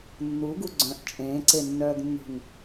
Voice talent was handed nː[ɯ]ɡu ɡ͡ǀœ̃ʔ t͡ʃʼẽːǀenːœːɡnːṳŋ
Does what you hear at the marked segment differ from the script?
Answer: yes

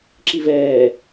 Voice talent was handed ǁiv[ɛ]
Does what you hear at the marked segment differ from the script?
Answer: yes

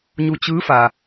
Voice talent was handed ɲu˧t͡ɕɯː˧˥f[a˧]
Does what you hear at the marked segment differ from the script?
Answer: yes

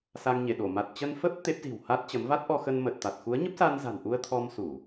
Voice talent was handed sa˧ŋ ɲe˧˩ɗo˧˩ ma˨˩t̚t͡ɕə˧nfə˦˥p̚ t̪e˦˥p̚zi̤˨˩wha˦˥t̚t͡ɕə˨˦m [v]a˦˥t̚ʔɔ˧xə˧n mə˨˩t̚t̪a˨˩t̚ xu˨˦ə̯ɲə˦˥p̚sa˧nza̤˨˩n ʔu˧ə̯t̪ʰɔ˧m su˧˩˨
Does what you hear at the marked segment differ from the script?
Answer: no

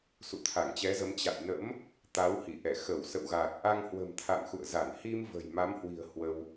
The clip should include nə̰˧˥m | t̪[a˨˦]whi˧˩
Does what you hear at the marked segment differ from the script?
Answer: no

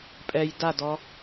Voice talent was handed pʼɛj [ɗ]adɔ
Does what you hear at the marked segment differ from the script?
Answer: yes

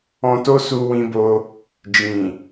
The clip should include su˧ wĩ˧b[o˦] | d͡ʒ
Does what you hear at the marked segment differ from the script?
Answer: yes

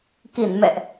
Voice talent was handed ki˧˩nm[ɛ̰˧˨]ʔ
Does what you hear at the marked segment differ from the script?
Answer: no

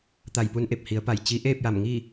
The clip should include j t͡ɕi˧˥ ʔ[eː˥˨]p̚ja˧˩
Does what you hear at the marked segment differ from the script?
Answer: no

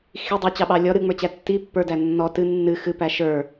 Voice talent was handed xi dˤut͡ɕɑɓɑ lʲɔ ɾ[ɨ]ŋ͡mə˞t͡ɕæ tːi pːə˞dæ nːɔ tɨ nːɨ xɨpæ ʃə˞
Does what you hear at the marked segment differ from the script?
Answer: no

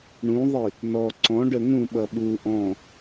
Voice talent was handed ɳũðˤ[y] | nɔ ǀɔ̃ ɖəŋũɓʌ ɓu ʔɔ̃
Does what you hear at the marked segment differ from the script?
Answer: yes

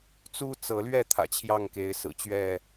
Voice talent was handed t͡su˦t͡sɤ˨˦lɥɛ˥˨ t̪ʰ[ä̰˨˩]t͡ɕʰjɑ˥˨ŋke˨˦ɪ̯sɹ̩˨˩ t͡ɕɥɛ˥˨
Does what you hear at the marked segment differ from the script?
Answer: no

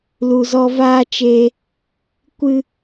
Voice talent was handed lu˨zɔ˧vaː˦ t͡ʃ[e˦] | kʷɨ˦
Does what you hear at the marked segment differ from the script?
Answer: yes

